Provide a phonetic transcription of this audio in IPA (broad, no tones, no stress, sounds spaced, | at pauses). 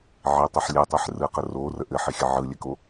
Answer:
ʕ ɘ tˤ ə ħ lʲ ɯ tˤ i ħ r ɯ q ə r o r ə ʔ ɘ ħ ɘ xʲ ə ʕ ɯ lʲ ɘ k o